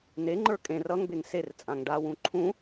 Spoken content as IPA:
n e ŋ͡ǃ ə˞ kʼ ẽ r ʌ ŋ b e ŋ s e r t͡sʼ ã ŋ ɖ a w ũ ǃʰ ũ

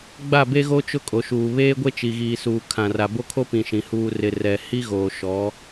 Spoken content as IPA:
ɡ͡b a˦˨ b e˦ ɣ o˦ t͡ʃ ʊ˦ kʼ o˨ ʃ uː˨ β eː˦ ɡʷ e˦ t͡ʃ i˨ ɣ iː˨ s uː˨ kʰ ã˨ r a˨ b o˦ kʰ o˦ p ĩ˨ ʃ ĩ˨ h uː˨ r ɪ˨ r ɛ˨ h i˦ ɣ oː˨ ʃ ɔ˨˦

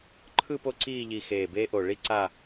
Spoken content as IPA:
ǃʰ ɯ˥˧ p o˥ ǀ iː˥˧ ʎ i˧ x eː˧˩ b eː˥ ʔ o˧˩ ɭ i˥ ǀ a˥˧

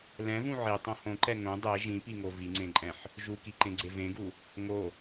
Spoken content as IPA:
l ɛ̃ v ũ ʕ i tˤ õ h õ ǃ ɛ ŋ õ dˤ e ʒ ĩ p i ŋ o v i ŋ͡ǀ ẽ ǃʼ ɛ̃ ħ | ʒ u k i ǃ ẽ ɡ͡ǀ e v ẽ ɡ u | ŋ o

